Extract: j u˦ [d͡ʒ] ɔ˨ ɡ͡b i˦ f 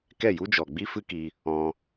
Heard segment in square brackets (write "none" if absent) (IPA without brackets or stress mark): d͡ʒ